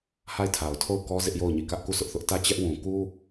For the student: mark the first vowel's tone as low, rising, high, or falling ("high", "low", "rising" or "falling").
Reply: falling